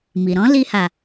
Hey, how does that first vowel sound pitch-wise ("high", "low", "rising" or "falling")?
low